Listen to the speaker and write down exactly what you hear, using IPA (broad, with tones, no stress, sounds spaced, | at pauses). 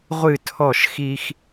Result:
ʁʷ ɨ˦˨ tʰ ɔ˦˨ ʃ x i˦ x